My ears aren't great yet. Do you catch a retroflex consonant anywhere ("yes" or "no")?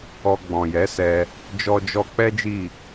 no